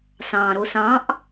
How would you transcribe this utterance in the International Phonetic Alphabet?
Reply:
s ɑ̃ ɾ o s ɑ̃ ʔ

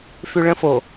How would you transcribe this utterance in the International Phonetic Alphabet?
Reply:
f y ɭ ə̃ f o

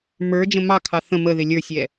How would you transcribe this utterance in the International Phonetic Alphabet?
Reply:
m ə˞ d͡ʒ ə̃ m ɑ kʰ ɑ θ ə̃ m ə ð ɪ lʲ ə˞ sʲ ɛ

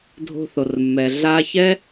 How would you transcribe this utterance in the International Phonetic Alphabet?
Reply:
dʱ o̤˧ θ o˨ r mː ɛ˨ ɮ a˧ ç ɛ˦

